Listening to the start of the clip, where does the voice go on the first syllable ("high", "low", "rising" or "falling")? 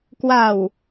low